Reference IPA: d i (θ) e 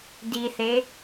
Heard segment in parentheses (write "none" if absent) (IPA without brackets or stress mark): θ